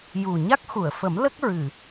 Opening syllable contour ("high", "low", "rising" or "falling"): low